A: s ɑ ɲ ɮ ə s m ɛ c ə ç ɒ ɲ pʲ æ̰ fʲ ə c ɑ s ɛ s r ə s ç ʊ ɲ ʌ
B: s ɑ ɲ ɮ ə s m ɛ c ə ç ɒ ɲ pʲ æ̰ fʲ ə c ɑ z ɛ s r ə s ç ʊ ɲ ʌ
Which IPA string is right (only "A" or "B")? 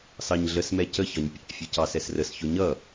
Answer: A